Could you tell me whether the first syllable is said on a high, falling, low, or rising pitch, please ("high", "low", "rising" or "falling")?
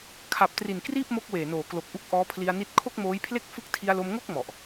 low